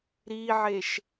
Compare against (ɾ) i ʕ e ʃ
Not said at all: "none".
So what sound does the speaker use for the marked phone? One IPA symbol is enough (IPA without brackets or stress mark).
ɾ